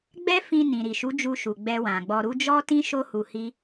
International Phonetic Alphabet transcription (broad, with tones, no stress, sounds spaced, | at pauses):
ɡ͡b ɛ˦ f ĩ˧ n ĩ˨ ɾ i˨ ʃ u˨˦ d͡ʒ u˧ ʃ u˨ ɡ͡b ɛ˧ w ã˨ ɡ͡b ɔ˧ ɾ u˦ d͡ʒ ɔ˦ t ĩ˦ ʃ o˦ h u˧ h i˦